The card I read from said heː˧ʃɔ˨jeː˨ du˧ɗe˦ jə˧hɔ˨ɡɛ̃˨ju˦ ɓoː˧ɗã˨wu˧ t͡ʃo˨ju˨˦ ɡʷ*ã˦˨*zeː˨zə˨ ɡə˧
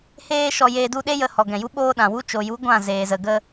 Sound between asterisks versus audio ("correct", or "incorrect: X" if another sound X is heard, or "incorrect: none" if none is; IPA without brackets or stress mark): correct